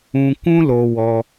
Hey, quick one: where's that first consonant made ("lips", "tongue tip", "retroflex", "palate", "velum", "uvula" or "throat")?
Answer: velum